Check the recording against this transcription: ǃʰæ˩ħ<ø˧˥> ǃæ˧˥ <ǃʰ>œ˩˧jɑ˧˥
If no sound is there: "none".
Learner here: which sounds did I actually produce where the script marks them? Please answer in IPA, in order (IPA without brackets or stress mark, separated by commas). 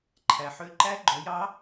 ø˧˥, ɡ͡ǃ